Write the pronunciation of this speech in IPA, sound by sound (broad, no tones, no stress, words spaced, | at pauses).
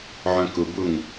ʕœ̃kʊbʊŋ